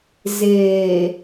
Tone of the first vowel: low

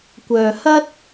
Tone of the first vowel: low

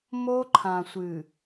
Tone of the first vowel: high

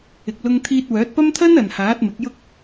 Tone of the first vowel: low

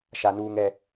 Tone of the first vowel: low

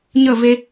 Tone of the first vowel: falling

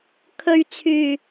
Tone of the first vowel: low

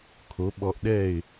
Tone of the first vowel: rising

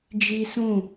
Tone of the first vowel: high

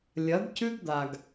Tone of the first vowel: rising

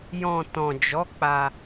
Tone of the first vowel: low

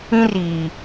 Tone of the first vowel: high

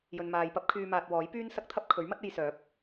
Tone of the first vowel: low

